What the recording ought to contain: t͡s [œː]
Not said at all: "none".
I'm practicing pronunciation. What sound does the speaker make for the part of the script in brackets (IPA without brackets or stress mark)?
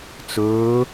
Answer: ɵː